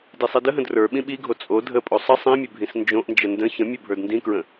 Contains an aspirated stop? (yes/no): no